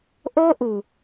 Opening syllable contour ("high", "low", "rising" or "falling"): high